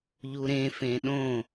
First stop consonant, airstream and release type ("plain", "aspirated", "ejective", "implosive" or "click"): implosive